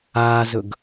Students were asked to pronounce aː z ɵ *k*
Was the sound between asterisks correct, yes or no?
no